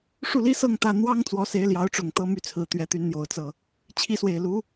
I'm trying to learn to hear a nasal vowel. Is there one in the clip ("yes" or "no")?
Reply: no